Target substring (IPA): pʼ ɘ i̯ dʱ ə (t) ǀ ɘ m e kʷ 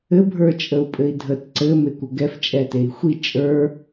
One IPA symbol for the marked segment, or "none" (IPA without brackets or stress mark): t